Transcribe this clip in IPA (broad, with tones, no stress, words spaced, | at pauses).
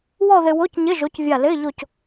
wɔ˥˧ðɪ˧wo˧˥˧cɲɪ˧˥˧ ʒo˨˥cvʲa˧˩lɪː˧˥˧ ʎo˧˩c